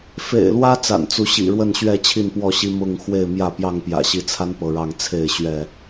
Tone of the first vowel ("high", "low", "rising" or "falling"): low